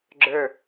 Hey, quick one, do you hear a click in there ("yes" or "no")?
yes